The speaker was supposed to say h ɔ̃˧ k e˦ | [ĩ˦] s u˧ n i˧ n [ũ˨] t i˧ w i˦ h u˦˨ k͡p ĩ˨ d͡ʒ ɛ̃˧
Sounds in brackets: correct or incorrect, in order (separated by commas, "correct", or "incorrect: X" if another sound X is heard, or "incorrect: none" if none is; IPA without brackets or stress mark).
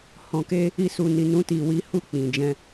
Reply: incorrect: i˦, incorrect: ũ˦